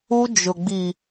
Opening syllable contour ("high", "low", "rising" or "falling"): high